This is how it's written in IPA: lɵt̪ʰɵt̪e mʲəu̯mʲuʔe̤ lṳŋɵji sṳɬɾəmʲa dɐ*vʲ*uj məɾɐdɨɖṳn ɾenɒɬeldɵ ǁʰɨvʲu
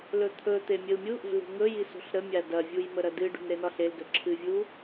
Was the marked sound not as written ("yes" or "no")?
no